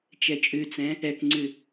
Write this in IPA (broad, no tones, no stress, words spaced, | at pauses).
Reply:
t͡ʃɛt͡ʃʼʉt͡sɛ̃ | ɛkŋ͡ǀʉ